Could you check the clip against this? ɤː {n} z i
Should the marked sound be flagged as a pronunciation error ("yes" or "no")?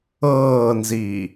no